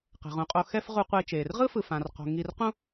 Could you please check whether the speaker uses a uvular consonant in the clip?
yes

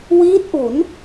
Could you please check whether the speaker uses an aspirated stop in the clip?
no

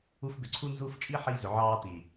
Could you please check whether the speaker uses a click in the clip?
yes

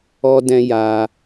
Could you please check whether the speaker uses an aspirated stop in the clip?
no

